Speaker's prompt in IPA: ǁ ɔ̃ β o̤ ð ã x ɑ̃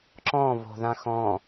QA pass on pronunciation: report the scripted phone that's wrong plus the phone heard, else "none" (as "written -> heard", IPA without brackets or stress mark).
ɑ̃ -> ɔ̃